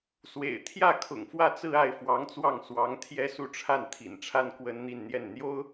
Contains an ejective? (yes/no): no